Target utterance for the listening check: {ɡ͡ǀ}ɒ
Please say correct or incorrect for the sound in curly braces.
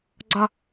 correct